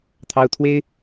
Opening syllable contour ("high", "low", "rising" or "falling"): high